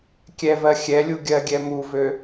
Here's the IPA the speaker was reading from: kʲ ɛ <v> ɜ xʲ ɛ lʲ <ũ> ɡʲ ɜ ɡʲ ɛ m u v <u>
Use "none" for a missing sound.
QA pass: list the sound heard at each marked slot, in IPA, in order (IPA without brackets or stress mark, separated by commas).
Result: v, u, ø